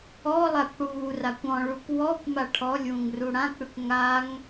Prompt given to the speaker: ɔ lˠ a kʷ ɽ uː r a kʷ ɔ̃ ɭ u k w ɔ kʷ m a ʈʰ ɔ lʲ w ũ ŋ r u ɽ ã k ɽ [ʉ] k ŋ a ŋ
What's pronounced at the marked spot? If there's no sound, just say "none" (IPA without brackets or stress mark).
ʉ